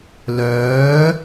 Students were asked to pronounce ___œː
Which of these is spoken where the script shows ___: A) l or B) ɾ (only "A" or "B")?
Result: A